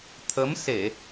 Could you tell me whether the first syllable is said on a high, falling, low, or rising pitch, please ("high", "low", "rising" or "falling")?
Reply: rising